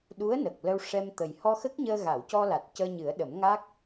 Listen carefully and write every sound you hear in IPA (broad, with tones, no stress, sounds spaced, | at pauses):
ɗ u˧˥ ə̯ n ə˨˩ k̚ l ə˧ w ʂ ɛ˧ m t̪ ə˨˩ j h ɔ˧ x ə˦˥ k̚ ɲ əː˧ ɣ a˨˩˨ w c ɔ˧ l a˨˩ t̚ c əː˧ ɲ ɨ˨˩˦ ə̯ ɗ ə˨˩˦ m ŋ a˦˥ k̚